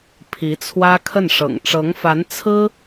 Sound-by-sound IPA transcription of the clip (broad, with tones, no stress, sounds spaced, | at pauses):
pʰ i˧˥ t͡sʰ w ä˥ kʰ ə˥˩ n ʂ ɤ̰˨˩ ŋ ʈ͡ʂ ɤ˧˥ ŋ f a˧˥ n t͡sʰ ɹ̩˥